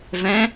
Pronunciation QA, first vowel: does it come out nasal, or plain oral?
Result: nasal